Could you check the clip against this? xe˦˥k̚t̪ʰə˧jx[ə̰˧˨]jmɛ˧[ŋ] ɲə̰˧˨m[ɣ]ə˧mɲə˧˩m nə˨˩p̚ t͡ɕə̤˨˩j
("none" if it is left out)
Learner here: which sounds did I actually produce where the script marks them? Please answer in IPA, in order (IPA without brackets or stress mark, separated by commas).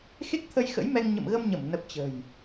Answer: ə̰˧˥, ŋ, ɣ